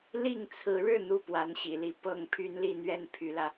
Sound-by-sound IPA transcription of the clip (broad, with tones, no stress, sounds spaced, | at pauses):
l i˥˩ ŋ t͡sʰ ɹ̩˧˥ ɻ ɻ̩˥˧ n̪ u˥˩ p w a˧˥ n ɕ ḭ˨˩ l i˥˧ p ɤ˥˩ ŋ pʰ y˥ n l i˥˧ n̪ ɥ ɛ˥˩ n pʰ y˧˥ l ä˧